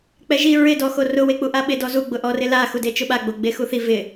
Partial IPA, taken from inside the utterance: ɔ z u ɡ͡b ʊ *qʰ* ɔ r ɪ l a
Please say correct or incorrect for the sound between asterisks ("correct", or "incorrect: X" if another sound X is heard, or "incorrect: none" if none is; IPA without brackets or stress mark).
incorrect: ʔ